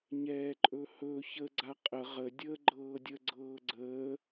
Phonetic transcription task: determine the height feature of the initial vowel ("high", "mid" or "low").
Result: mid